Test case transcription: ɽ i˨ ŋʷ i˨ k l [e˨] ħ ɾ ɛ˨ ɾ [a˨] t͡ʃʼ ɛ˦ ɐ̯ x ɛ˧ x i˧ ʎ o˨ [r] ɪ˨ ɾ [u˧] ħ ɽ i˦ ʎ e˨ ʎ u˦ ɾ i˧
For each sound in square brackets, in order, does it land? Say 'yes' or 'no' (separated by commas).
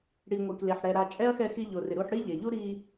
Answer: yes, yes, yes, yes